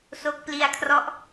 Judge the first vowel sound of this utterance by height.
mid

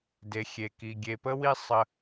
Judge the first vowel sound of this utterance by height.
mid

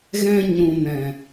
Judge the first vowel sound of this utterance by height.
mid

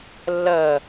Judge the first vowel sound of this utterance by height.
low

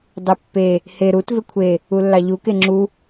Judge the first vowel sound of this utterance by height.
high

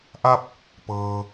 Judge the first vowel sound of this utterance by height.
low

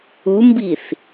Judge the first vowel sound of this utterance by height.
high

